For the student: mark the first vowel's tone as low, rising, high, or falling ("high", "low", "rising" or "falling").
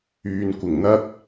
low